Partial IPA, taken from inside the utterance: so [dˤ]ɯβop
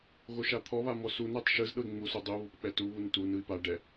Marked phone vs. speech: correct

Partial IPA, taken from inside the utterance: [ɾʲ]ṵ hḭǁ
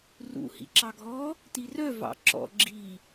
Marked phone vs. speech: incorrect: r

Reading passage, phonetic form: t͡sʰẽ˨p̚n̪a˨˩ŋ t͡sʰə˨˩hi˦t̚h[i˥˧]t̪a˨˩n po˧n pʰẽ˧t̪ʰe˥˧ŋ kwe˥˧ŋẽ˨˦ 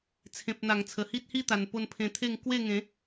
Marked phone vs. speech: correct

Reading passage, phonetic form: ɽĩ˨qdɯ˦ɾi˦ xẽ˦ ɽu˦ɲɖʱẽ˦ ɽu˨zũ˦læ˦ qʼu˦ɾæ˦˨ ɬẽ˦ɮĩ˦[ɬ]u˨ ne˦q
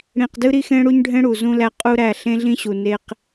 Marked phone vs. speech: incorrect: ɕ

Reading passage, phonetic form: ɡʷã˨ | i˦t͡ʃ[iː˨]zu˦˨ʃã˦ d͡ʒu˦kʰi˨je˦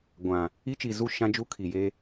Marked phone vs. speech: incorrect: i˨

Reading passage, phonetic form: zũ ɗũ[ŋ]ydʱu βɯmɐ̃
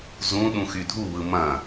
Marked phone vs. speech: incorrect: x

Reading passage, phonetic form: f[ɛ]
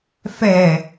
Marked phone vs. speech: correct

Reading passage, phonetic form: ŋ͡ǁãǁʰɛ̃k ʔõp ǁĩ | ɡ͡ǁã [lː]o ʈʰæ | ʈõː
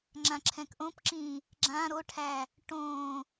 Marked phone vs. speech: incorrect: ɾ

